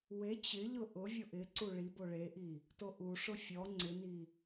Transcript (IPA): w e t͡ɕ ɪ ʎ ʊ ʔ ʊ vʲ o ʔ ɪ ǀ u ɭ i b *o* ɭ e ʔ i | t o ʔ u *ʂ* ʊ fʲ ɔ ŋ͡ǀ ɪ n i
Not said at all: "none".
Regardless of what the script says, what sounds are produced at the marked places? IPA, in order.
o, ʂ

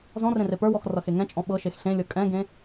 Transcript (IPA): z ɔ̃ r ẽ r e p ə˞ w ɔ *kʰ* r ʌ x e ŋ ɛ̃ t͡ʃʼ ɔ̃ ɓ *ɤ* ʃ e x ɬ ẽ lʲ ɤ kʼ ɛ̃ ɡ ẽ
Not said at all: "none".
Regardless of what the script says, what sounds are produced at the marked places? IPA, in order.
x, ɤ

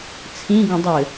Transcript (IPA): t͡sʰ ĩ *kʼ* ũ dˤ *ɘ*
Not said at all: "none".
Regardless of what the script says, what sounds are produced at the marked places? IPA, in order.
ɡ, ɘ

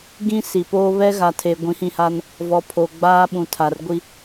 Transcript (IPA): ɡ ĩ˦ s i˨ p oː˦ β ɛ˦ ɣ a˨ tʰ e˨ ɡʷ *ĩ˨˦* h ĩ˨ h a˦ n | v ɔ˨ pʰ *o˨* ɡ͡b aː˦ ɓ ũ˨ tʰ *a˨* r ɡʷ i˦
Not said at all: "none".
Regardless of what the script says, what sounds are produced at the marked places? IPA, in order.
ĩ˨˦, o˨, a˨

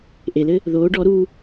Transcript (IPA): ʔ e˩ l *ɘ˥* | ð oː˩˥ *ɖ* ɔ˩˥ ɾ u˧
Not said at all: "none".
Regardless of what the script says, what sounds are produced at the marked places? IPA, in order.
ɘ˥, ɖ

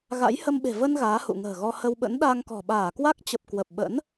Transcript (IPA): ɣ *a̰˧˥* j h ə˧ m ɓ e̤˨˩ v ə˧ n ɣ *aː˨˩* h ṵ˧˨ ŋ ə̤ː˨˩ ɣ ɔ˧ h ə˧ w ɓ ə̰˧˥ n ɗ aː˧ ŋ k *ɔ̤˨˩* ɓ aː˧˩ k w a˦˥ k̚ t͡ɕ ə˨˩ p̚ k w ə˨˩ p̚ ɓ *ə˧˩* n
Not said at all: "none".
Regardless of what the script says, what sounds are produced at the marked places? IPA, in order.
a̰˧˥, aː˨˦, ɔ̤˨˩, ə̰˧˥

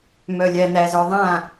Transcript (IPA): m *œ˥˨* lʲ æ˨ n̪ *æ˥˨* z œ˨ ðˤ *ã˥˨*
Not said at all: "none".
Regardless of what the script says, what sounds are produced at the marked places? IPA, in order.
œ˨, æ˨, ã˥˨

